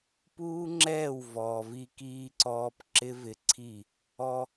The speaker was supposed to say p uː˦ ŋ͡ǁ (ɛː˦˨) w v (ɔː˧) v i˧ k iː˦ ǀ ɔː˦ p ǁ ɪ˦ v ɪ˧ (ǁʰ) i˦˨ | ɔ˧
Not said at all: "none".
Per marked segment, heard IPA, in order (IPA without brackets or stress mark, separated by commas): ɛː˦˨, ɔː˨, ǀʰ